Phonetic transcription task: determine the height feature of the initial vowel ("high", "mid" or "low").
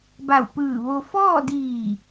low